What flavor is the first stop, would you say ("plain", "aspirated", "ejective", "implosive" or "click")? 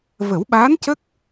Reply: implosive